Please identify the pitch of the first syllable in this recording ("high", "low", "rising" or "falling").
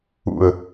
falling